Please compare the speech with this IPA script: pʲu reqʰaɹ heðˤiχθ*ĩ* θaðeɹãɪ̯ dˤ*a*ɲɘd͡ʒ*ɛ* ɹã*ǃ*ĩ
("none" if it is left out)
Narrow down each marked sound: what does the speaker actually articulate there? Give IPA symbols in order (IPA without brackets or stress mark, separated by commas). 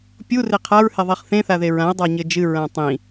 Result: ẽ, a, ɨ, tˤ